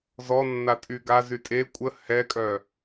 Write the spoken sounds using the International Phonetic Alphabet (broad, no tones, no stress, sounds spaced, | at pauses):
z ɔ nː a tʼ y ɡ a z y tʼ e kʷʼ ə h ɛ kʼ œ